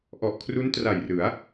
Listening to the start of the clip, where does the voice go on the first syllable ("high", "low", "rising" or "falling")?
low